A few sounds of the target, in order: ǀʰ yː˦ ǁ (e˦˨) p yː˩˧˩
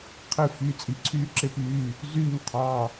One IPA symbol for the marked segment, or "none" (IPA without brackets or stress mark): e˦˨